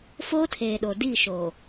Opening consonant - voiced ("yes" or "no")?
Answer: no